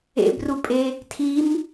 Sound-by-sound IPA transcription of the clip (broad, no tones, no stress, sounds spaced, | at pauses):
ḛ b r u pʼ e | tʰ i m